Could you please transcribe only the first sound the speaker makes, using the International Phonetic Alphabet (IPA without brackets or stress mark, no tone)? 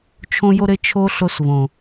t͡ʃʰ